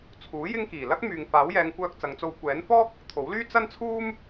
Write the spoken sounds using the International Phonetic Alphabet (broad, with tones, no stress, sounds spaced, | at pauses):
t͡sʰ uː˨˥ j ɪ˥ ŋ k iː˨˩ l ɐ˥ k̚ m yː˨ ŋ f aː˨˥ w j ɛː˨˧ ŋ kʷ œː˧ k̚ t͡s ɐ˨˧ ŋ t͡s o˧ w kʷ ɛː˨˥ n f ɔː˥ k̚ | t̪ʰ o˨˥ w l yː˥ t͡s ɐ˥ n t͡sʰ uː˥ m